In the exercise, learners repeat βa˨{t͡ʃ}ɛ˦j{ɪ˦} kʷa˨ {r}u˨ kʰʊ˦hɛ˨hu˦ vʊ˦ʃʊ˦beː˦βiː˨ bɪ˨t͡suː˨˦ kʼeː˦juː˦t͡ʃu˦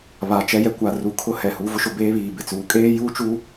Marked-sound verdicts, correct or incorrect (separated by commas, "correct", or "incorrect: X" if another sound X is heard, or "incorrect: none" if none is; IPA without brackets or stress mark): correct, incorrect: ɛ˦, correct